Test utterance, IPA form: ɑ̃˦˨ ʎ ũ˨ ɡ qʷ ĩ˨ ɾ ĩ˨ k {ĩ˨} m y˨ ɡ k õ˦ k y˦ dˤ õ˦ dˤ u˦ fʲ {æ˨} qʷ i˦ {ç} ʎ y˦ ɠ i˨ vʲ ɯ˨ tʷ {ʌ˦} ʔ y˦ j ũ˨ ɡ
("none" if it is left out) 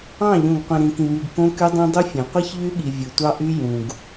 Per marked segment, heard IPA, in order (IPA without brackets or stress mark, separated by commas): ĩ˨, æ̃˨, ç, ɑ˦